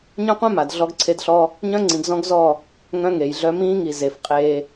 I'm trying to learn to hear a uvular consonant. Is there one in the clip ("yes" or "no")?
yes